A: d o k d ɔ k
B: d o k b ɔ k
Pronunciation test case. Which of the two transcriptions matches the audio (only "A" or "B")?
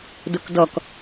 A